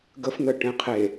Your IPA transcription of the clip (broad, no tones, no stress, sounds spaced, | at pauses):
ɡ ə f n̪ ə ʈ ẽ qʰ e